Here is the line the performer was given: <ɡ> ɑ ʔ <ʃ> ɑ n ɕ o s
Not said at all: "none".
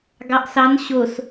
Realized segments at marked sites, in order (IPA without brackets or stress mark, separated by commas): ɡ, s